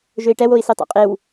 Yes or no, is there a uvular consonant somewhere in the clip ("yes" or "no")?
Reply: yes